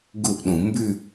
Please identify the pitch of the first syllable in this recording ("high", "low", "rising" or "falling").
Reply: falling